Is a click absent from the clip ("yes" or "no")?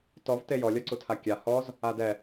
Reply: no